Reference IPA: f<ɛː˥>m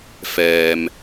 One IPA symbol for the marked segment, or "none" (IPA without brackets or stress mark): ɛː˨